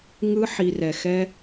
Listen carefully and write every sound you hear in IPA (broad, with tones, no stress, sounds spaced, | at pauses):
ŋ ɯ˧ ħ i˨ r ɛ˨ x ɛ˧